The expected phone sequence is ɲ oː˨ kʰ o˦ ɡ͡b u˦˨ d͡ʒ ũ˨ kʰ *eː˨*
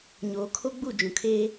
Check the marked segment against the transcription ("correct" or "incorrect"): incorrect